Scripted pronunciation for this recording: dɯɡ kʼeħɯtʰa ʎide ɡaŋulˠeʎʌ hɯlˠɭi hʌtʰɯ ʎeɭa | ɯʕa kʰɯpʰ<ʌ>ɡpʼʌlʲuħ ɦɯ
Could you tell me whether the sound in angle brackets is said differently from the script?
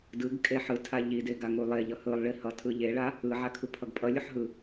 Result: no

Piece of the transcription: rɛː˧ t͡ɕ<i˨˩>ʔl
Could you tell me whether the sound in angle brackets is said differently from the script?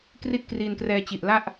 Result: no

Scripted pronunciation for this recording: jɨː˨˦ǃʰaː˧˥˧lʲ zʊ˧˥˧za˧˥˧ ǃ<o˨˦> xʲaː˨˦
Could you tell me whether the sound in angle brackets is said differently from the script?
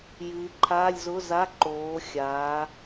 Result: yes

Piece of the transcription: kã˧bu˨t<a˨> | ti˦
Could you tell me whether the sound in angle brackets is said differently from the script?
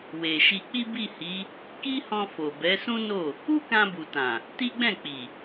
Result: yes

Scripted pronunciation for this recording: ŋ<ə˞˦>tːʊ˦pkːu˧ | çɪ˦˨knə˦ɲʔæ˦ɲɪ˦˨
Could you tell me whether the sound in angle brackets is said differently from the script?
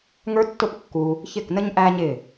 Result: no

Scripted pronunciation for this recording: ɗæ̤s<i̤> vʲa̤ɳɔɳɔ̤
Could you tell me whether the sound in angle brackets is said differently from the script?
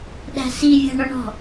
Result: yes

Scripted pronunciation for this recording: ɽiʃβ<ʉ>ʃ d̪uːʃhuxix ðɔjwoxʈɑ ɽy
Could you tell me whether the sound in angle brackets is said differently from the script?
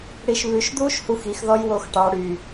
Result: no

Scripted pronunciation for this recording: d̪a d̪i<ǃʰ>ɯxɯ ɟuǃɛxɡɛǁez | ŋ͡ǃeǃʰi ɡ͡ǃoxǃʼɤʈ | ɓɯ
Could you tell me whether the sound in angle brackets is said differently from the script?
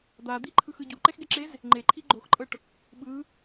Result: no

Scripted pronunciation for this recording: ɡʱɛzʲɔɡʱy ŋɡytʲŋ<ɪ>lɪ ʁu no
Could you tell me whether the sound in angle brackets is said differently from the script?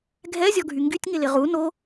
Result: no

